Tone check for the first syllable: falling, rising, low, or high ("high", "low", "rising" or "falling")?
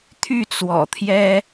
falling